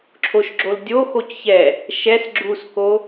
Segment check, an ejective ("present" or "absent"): absent